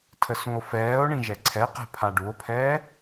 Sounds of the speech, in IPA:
tʰ ə s ũ o̯ f ɛː o̯ ɳ ĩ ʒ ɛ ǀʰ ɛ q ɛ̤ pʰ a ɖ u o̯ pʰ ɛː

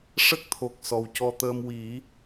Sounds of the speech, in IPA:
ʂ ə˦˥ k̚ t̪ʰ o˨˩ k̚ s ɔ˨˩ w c ɔ˧ t̪ əː˧ m w i˨˩˦

